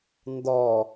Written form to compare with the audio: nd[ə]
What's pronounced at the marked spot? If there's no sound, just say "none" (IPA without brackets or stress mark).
ɔ